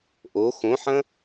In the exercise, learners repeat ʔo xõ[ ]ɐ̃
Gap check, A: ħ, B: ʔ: A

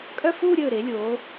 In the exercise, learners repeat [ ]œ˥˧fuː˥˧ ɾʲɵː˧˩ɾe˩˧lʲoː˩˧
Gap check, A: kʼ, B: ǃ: A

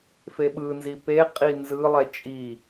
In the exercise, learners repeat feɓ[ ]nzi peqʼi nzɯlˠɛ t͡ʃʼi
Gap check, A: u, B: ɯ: B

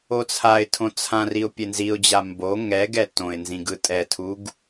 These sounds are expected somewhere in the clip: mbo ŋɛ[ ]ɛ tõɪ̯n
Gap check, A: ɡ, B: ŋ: A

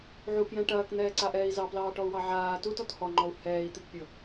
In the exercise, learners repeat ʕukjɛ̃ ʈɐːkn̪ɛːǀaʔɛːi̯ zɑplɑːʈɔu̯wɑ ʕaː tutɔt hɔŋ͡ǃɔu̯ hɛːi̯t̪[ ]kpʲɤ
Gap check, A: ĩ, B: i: B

